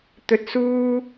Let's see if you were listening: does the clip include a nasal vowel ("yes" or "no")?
no